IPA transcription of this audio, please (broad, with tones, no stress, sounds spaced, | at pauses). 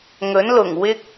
ŋ ɵ˨˥ n l ʊ˨˩ ŋ w ɪ˥ k̚